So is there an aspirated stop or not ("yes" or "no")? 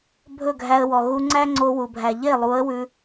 no